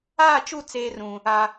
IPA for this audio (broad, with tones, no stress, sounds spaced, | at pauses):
aː˦˨ t͡ʃ u˦˨ t͡s eː˦ r ũ˨ | a˨